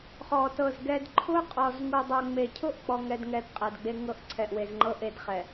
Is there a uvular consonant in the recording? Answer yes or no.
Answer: yes